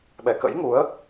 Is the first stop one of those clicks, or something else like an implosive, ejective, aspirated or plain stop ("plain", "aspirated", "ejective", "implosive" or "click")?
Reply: implosive